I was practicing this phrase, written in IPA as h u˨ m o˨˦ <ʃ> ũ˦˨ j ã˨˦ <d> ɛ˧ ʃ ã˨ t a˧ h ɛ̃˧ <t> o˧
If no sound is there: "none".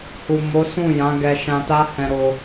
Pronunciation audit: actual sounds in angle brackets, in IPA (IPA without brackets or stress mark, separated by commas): s, ɡ, ɾ